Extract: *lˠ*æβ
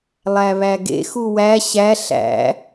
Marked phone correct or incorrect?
correct